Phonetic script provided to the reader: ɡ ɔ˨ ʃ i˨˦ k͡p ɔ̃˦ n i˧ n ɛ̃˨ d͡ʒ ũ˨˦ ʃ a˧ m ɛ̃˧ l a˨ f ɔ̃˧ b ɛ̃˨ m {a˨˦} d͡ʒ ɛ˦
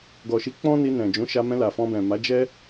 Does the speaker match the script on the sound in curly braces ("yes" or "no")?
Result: yes